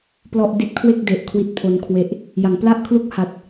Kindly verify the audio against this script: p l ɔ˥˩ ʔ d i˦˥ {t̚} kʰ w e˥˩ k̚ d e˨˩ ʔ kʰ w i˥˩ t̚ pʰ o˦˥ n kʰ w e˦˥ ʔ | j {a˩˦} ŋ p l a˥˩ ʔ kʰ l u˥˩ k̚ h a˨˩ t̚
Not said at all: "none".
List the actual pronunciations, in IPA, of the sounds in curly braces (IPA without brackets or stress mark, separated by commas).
t̚, a˩˦